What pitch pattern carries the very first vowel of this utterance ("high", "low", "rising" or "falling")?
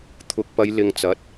rising